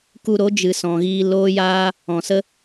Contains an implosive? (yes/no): no